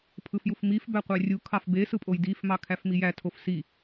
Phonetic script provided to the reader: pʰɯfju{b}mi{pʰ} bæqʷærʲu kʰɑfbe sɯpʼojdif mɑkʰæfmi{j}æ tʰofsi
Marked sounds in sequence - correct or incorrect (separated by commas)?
incorrect, incorrect, correct